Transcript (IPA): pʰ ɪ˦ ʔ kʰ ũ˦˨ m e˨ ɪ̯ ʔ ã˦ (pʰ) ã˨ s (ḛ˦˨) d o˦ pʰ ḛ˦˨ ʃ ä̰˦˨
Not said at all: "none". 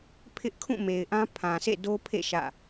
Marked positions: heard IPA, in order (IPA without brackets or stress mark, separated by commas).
pʰ, ḛ˦˨